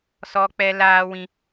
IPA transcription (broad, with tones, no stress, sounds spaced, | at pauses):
s ɔ˦ k͡p ɛ˦ l aː˦ w ĩ˦